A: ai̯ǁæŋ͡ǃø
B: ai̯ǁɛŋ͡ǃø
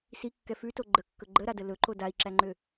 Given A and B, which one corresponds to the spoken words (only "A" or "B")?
A